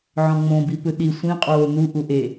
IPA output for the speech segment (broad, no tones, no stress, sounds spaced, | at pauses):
ʕ ɔ̃ ŋ͡m õ b i p ɯ ɗ i sʷ ĩ qʼ oː n u ʔ u ʔ e